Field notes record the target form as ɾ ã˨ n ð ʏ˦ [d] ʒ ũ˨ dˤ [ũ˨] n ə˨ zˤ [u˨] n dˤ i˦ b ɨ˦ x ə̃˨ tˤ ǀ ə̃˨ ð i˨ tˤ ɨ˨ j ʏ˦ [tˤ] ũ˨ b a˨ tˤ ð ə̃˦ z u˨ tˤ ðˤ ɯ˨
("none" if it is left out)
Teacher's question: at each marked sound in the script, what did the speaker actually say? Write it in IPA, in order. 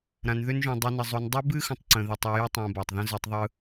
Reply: n, u˨, u˨, tˤ

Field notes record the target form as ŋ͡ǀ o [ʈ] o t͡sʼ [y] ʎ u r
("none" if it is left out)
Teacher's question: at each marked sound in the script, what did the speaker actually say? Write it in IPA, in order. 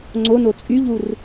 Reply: n, y

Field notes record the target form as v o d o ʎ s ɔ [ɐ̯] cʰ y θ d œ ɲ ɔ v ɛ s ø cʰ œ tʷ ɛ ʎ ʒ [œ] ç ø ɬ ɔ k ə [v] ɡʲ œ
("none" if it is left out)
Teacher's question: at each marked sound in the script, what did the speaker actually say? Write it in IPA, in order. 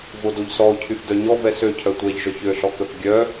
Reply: o̯, œ, θ

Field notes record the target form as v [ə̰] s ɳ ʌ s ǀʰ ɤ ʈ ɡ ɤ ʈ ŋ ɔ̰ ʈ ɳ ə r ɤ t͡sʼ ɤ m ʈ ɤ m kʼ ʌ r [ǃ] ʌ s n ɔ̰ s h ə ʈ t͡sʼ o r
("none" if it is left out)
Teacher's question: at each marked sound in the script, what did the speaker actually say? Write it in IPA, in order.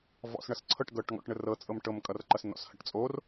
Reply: ɔ̰, ǃ

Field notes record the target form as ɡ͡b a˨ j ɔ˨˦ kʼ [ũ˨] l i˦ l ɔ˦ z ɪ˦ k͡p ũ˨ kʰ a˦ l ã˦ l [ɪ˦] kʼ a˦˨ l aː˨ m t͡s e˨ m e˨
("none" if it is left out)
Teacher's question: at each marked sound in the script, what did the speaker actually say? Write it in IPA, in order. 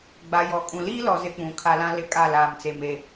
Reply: ũ˨, ɪ˦˨

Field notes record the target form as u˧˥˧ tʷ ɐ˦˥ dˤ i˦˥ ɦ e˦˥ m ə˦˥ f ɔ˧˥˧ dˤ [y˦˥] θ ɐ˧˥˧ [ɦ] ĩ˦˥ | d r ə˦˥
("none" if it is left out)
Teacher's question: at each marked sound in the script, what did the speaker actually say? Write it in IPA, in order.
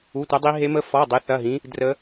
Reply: e˦˥, ɦ

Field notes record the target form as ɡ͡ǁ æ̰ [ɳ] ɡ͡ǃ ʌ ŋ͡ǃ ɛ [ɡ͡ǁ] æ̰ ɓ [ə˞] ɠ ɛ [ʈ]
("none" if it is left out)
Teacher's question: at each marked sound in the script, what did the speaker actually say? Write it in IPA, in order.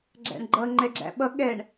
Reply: ɳ, ɡ͡ǁ, ʌ, ɳ

